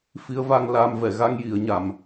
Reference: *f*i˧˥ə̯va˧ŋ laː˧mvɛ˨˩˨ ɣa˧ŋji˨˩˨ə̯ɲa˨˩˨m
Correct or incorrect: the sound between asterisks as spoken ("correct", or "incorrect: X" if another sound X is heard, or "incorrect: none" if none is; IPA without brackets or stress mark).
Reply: correct